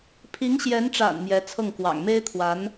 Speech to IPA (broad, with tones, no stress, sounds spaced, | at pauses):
pʰ i˧˥ ŋ ɕ j ɛ˧˥ n ʈ͡ʂ a̰˨˩ n m j ɛ˧˥ t͡sʰ ɤ˥˩ ŋ k w ɑ̰˨˩ ŋ m e˥ ɪ̯ t̪ʰ w a˧˥ n